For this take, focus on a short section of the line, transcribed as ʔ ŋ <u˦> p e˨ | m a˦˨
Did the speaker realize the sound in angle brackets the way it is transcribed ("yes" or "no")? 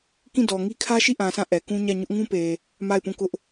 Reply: no